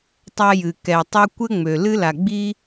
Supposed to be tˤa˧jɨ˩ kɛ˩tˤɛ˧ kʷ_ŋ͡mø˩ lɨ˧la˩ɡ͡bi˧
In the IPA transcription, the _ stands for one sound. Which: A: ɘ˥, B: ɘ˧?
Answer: A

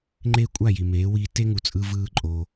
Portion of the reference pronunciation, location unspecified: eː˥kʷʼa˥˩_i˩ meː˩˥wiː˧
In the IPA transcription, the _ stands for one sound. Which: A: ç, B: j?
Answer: B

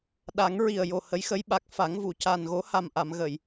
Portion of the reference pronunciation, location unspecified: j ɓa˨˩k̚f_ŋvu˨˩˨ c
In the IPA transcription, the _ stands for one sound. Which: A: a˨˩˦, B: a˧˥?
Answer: A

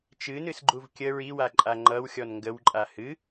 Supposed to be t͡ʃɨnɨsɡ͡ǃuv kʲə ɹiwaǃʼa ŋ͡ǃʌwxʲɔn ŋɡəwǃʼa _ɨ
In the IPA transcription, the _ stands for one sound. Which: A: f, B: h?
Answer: B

